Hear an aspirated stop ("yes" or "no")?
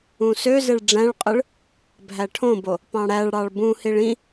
yes